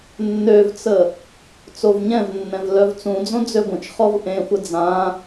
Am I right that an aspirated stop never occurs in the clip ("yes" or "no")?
yes